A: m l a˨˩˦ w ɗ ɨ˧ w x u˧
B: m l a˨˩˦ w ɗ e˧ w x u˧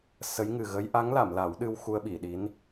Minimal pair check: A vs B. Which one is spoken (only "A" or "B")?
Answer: A